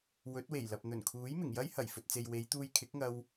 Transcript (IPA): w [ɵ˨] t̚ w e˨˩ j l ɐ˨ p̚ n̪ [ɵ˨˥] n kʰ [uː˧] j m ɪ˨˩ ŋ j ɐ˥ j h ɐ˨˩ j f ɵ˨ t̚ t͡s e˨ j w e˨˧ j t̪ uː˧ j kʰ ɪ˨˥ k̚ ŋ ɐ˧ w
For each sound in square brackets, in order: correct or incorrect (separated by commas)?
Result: incorrect, incorrect, incorrect